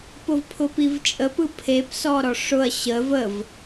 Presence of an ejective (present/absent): present